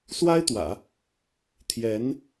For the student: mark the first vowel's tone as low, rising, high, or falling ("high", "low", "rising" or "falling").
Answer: high